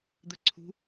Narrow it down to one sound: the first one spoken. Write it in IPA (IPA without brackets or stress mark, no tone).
d̪